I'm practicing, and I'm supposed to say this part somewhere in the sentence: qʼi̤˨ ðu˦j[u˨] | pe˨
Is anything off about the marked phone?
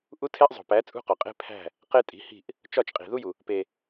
no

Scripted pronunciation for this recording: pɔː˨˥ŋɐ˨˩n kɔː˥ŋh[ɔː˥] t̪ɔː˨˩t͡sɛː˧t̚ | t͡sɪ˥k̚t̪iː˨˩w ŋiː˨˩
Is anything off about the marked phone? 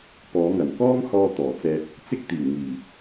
yes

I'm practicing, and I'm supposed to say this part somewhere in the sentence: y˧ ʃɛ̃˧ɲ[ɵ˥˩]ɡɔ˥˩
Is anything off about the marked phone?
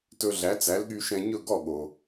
no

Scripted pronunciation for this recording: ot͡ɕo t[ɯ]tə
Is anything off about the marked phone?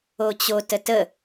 yes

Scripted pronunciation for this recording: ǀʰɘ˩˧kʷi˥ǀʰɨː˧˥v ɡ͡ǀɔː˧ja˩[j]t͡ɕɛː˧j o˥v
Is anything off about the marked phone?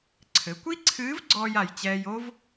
no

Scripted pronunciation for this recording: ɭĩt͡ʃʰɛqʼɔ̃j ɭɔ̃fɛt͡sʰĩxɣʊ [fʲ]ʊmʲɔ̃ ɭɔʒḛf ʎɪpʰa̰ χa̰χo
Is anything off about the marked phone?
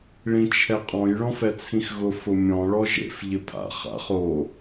yes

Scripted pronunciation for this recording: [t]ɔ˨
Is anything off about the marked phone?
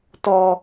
no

